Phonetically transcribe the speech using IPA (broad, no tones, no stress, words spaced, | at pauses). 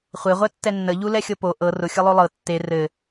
χʷeʁʷɛtːɛ nːəʎulɛxʲɤ po ʔɤ rʊxʲɤlˠo lˠɤ tːe rɘ